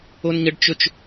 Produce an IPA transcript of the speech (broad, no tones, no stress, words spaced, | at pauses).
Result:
onɲəɖt͡ʃɵt͡ʃ